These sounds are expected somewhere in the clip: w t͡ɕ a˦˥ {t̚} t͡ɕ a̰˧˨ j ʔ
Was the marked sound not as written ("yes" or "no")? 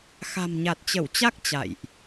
yes